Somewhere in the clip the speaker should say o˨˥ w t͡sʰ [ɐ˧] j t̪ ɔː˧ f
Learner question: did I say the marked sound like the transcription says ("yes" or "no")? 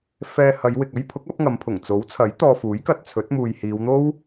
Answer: no